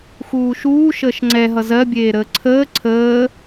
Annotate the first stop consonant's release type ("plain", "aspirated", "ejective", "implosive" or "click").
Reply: click